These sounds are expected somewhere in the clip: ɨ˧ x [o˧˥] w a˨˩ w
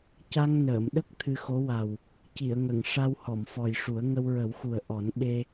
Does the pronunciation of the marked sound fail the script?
no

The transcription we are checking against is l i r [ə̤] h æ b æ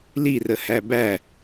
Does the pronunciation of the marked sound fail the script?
yes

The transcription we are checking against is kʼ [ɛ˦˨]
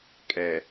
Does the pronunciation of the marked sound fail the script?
yes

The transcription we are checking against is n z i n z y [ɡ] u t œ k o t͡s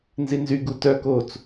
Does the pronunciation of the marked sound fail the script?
no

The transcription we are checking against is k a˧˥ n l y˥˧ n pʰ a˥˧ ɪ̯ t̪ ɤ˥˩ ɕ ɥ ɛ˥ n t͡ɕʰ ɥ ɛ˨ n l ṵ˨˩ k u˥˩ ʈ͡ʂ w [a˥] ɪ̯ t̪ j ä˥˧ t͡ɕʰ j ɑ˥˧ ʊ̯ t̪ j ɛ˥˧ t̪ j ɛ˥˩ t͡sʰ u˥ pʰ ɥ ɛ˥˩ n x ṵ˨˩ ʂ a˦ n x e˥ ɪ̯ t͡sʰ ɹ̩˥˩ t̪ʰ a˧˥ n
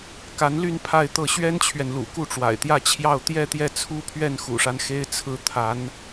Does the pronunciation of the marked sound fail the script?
yes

